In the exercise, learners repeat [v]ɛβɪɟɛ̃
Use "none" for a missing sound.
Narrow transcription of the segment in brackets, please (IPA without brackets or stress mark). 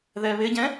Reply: ð